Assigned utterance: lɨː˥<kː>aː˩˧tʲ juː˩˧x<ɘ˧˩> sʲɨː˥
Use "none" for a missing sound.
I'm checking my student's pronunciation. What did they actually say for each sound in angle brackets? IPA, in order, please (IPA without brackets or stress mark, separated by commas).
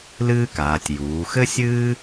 k, ɘ˥